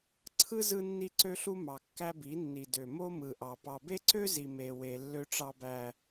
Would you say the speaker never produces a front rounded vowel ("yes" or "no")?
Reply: no